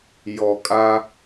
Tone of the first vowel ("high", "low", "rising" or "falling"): low